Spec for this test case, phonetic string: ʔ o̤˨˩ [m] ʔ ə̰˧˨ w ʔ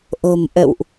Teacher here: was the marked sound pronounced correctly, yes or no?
yes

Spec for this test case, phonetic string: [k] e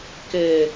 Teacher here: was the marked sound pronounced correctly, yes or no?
yes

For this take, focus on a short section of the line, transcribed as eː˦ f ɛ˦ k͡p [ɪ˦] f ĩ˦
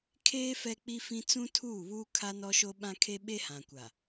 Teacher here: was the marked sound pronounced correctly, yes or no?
no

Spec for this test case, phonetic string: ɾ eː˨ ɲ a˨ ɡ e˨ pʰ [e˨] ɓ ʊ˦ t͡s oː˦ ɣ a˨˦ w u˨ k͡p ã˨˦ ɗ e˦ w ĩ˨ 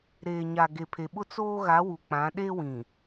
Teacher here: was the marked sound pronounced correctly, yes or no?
yes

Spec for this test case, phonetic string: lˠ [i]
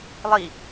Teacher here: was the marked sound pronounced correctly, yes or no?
yes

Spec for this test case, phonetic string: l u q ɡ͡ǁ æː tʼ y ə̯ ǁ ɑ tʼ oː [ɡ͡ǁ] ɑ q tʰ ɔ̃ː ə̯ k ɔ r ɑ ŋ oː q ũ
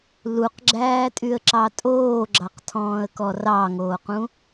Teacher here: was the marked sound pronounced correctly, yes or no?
yes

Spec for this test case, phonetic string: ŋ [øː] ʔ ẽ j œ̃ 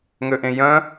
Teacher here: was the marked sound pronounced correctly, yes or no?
no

